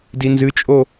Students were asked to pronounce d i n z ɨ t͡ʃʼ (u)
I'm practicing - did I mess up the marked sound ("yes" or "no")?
yes